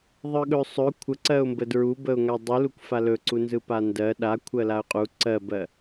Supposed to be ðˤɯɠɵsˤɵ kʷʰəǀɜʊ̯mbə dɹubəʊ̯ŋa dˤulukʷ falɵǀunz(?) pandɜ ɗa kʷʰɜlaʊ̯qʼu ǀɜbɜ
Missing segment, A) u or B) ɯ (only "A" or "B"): B